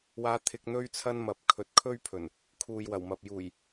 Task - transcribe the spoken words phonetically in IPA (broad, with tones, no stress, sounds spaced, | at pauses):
w aː˧ t̪ʰ ɪ˧ k̚ n̪ ɵ˥ ɥ t͡sʰ ɐ˥ n m ɐ˨ p̚ kʰ ɵ˨˥ t̚ kʰ ɵ˥ ɥ pʰ ɵ˨˩ n | kʰ uː˨ j w ɐ˨˩ w m ɐ˨ p̚ j uː˨˩ j